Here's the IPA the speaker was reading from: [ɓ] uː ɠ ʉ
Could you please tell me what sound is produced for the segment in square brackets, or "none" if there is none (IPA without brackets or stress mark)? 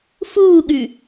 f